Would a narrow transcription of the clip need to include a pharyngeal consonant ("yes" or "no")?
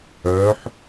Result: yes